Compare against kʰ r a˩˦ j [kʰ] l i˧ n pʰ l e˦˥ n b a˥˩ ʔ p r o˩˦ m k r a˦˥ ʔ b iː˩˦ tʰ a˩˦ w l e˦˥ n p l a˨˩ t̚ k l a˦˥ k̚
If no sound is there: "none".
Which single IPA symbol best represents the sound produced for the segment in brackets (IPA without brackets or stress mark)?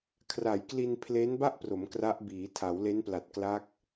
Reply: k